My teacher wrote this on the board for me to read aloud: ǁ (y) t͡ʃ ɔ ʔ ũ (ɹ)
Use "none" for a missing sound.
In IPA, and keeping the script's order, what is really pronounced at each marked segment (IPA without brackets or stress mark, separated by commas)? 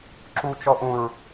u, ɹ